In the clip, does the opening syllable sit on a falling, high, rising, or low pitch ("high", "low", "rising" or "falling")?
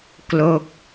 falling